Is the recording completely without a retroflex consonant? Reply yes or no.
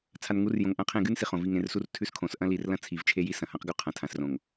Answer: yes